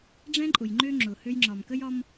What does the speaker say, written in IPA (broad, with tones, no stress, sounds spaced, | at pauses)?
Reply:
ɖ͡ʐ ɛ̃˦ ǃʼ ʊ˨ j ŋ͡ǃ ø˦ ŋ͡ǁ ʊ˨ h ø˦ j ŋ͡ǁ ɒ˨ m k ə˦ j ɒ˦ m